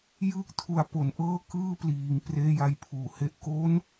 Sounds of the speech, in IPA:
j ɯː˥˩ k̚ tʰ u˧ a̯ p o˩˦ n ʔ ɤː˥˩ k ɯː˥˩ p l iː˩˦ ŋ p r eː˧ j a˧ j pʰ uː˩˦ h e˦˥ ʔ k o˦˥ n

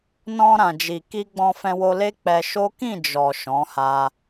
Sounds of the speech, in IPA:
n ɔ̃˧ ɾ ã˨ d͡ʒ i˨ k i˧ ɡ͡b ɔ̃˧ f ɛ̃˧ w o˧ l e˦ k͡p ɛ˧ ʃ o˦ k ĩ˦˨ d͡ʒ ɔ˨ ʃ ɔ̃˨˦ h a˧

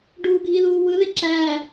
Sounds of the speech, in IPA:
ɖ uː ɡʱ i ð uː w ɯ ð e ǁ æː

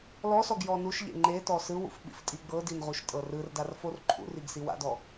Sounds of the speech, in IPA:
l ɔ s ɔ ɡ j ɔ n u ʃ ʎ ḛ ŋ͡ǃ e t ɔ s ɯ w ṵ f ɓ ḭ f tʼ i ɡ͡b ɤ d i n ʁ u ʃ tʼ ɤ r ɯ r d a r f o r ǃʰ ṵ r i ɡ s i w a̰ d ɔ

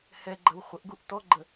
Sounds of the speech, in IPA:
h ɛ ɡ͡ǃ ɐ w χʷ ə ʔ ɡ u ʔ t̪ ɔ ɡ͡ǃ ə

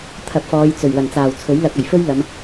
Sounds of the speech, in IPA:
t̪ʰ ɐ˨ p̚ f ɔː˨˧ j t͡s ɵ˨˩ ɥ w ɐ˨˩ n t͡s aː˨˩ w t͡sʰ ɵ˨˥ ɥ l ɐ˧ k̚ ɐ˨˩ j f ɵ˥ ɥ l ɐ˨˧ m

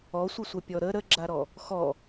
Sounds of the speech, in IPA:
ɔ sʷ ɪ sʷ ə pʲ ɔ ɾ ə ɾ ə ɡ͡ǁ a ɾ ɔ | x ɔ

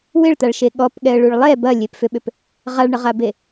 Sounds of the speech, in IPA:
w ɪ ɭ t̪ a ɭ ʃ e ɠ ɔ p ɠ ɛ ə̯ ɭ u ɭ lˠ ɛ b ɐ lʲ e p f ʏ ɓ ʏ p | ʁ a ɭ ɳ ə ʁ a b e

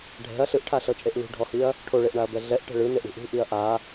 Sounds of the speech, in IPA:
ɖʱ ɛ̤ ɐ̯ ɬ ɯ ʔ ʈʰ a ɬ ɤ t͡ʃʼ e ʔ l ṳ ɖʱ ɔ h i ɐ̯ | ʈʰ o ɭ e ʔ ɳ a ɐ̯ b ɛ ɮ ɛ ʔ ʈ ɛ̤ ɭ ɯ n e ʔ ɳ ṳ ʔ ṳ ʔ i ɐ̯ ʔ a

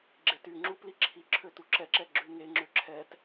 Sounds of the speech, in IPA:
ɡ͡ǁ e t y ŋ͡ǁ u p l i ǁʰ i ǁʰ ø t u ǁ ɛ ǁ ɛ ɡ͡ǁ ʉ ŋ e ŋ͡ǁ ø ǁʰ ɛ t

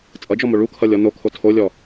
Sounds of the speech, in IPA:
t͡sʼ ʌ d͡ʒ ɔ m o ɭ u kʰ ʌ lʲ ɔ n o kʰ o tʰ o lʲ ɔ

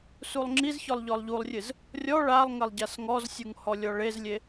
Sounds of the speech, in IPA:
s u lˠ ŋ͡ǁ i z ç ɔ lˠ ʎ ɔ lˠ ʎ u lˠ rʲ ɨ z | rʲ ɔ ɭ a lˠ ŋ ɐ lˠ ɟ a s ŋ ɔ z sʲ u ŋ h ɔ lʲ ɔ ɭ e z lʲ e

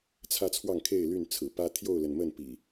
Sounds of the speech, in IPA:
t͡sʰ ä˦ t͡sʰ w ɑ˥˨ ŋ kʰ e˥˨ ɪ̯ l y˥˨ n t͡sʰ ɹ̩˨˩ p ä˦ t̪ʰ j o˥˨ ʊ̯ l ə˩ n m ə˥˨ n p ḭ˨˩

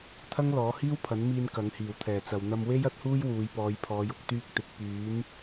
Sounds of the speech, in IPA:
t̪ʰ ɐ˥ ŋ l ɔː˨˥ h iː˥ w pʰ ɐ˨˥ n m iː˧ n k ɐ˨˥ ŋ h iː˨˩ w t̪ʰ ɛː˨˩ t͡s ɐ˨ w n̪ ɐ˧ m w e˥ j ɐ˥ t̚ h uː˥ j w uː˨˧ j p ɔː˨˧ j pʰ ɔː˨˧ j ʊ˨ k̚ t̪ yː˧ k̚ t̪ ɪ˨ k̚ p yː˨˥ n

